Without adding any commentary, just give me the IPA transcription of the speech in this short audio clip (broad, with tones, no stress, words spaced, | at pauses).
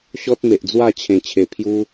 ɕɔ˦t̚ me˨ʔd͡zwa˥˧t͡ɕʰẽ˨˩ t͡ɕʰe˨˩pʰju˦